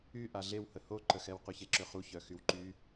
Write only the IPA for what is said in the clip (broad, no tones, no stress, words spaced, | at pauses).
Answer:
y ʔaɮewhə hoǃəxɛw qyçeǁøχu çœxywǃy